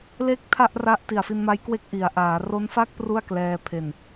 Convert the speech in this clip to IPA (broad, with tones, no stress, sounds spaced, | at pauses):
l e˥˩ k̚ tʰ a˥˩ ʔ r a˦˥ ʔ t i˨˩ a̯ f i˧ n m a˦˥ j k w e˥˩ k̚ ʔ i˩˦ a̯ ʔ aː˩˦ r o˦˥ n f a˥˩ k̚ p r u˥˩ a̯ k l ɛː˧ pʰ e˨˩ n